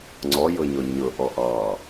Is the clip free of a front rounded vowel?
yes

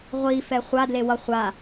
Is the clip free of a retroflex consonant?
yes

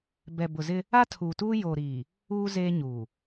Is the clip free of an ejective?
yes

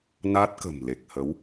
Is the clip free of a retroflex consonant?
yes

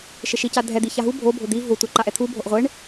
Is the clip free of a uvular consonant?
no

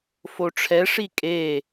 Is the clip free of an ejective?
no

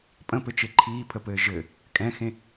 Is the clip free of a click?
no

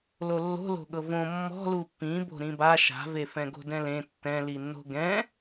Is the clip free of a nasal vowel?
no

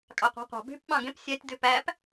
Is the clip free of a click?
yes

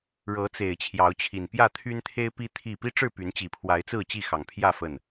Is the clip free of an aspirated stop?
no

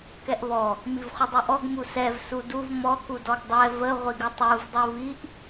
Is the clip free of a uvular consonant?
no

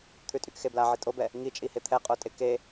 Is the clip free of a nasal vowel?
yes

